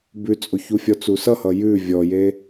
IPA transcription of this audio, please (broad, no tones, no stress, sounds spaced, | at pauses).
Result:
b ʉ t͡sʼ o ç u fʲ ɔ t͡s u s ʌ h ʌ j ʉ vʲ ɔ j e